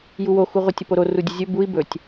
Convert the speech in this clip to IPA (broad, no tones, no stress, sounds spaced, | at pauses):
j u w o x u ʁʷ ə tʲ ə p o ɾ o r u dʲ ə zʲ ɵ b u i̯ b ɵ tʲ